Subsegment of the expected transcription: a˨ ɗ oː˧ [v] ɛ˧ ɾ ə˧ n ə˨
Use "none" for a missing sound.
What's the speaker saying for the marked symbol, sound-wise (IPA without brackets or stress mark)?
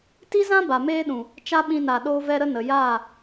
v